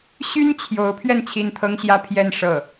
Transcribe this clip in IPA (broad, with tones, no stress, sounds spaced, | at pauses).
ɕ y˥ n t͡ɕʰ j o˧˥ ʊ̯ pʰ ɥ ɛ˧ n t͡ɕʰ i˥ n t̪ʰ ɤ˥ ŋ ɕ j ä˥ pʰ j ɛ˥˧ n ʂ ɤ˥˩